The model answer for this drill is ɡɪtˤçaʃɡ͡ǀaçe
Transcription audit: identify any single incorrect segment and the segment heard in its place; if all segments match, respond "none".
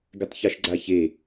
none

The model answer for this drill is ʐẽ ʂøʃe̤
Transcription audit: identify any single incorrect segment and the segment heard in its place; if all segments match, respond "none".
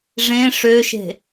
none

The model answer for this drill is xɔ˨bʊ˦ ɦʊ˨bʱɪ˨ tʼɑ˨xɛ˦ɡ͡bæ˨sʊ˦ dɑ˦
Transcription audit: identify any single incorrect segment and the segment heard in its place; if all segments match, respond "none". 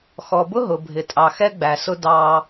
none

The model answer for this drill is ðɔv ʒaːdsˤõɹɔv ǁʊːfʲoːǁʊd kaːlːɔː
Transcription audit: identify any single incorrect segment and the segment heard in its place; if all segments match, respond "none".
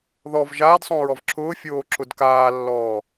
none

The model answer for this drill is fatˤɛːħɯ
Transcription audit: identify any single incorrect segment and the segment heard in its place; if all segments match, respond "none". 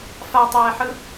none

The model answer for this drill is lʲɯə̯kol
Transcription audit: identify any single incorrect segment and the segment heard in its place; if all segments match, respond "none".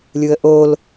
k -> ʔ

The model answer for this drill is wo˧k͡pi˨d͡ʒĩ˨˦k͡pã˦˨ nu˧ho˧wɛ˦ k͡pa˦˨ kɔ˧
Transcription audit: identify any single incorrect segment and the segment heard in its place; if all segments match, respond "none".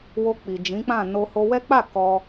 u˧ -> o˧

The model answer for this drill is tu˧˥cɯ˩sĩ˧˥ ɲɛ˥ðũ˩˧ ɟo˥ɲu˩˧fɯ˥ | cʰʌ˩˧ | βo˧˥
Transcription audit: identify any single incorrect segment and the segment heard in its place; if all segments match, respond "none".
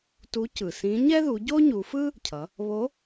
ũ˩˧ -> u˩˧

